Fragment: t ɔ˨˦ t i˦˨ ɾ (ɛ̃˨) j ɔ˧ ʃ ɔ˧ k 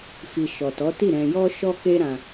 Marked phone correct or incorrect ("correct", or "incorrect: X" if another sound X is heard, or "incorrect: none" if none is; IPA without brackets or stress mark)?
correct